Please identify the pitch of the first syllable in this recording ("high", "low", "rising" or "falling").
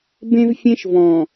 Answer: high